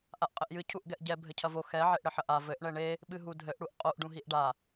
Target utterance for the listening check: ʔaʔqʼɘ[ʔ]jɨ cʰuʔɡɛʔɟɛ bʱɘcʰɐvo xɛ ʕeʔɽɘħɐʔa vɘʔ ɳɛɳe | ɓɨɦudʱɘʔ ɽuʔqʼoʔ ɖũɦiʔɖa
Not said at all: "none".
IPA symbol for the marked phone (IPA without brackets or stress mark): ʔ